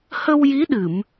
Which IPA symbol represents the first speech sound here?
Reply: h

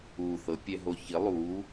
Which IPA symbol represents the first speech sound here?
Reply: uː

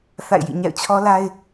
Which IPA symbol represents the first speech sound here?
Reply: θ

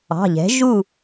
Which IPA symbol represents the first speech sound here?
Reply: ɑ̤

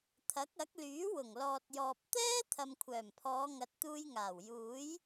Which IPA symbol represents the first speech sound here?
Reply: t̪ʰ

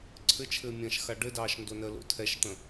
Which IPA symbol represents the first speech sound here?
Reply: ǀʰ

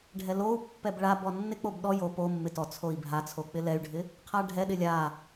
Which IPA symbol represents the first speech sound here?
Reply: ɖʱ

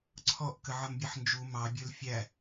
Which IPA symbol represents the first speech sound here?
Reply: ǀʰ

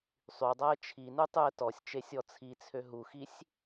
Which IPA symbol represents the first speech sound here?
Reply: sˤ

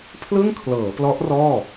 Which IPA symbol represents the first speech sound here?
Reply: pʰ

